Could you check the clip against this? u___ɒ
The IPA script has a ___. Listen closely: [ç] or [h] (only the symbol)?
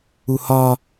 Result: h